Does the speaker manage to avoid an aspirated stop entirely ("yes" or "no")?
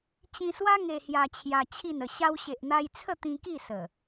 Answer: no